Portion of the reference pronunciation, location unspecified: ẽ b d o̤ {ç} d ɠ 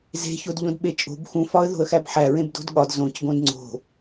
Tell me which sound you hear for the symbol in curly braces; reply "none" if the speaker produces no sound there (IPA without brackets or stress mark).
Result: none